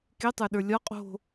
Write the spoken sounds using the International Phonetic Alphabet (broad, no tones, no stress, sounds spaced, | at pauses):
k e tˤ ə˞ ɗ ə˞ lʲ ɒ qʼ o̤